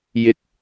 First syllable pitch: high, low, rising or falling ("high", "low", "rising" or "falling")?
high